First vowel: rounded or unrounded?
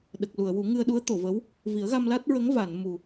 unrounded